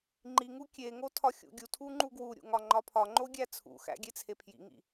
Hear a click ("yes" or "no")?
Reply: yes